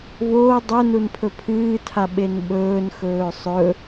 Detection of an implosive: present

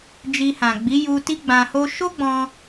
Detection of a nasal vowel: present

